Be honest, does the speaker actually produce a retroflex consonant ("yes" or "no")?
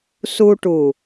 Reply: yes